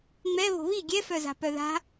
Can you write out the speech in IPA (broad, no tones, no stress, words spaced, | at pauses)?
ŋ͡mɛ βo̤βi ɡʲɛfœza̤ pœða̤